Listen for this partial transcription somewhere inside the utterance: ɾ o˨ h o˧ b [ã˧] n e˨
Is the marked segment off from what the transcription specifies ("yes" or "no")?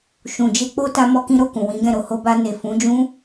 yes